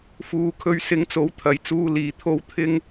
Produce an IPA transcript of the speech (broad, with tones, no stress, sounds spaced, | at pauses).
f uː˨˧ kʰ ɵ˧ ɥ s ɪ˨˥ ŋ t͡s o˨˥ w t̪ʰ ɐ˨ j t͡s uː˧ l iː˨ t̪ʰ o˥ w t̪ʰ ɪ˥ ŋ